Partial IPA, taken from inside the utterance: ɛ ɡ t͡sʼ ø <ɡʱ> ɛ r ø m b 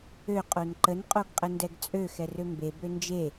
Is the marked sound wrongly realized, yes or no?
yes